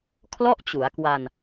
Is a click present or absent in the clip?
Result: absent